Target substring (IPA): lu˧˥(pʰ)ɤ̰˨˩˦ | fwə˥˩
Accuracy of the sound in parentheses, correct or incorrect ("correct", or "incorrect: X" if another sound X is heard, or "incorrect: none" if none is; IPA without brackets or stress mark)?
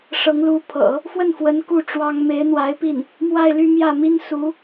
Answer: correct